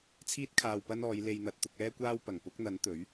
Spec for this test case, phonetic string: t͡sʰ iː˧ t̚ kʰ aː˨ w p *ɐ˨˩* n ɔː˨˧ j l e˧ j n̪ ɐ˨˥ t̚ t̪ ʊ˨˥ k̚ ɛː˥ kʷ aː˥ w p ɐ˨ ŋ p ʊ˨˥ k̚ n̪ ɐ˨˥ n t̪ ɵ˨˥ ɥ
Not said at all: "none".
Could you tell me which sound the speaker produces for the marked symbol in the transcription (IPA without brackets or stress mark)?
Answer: ɐ˧